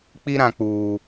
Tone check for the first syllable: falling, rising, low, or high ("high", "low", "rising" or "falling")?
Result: high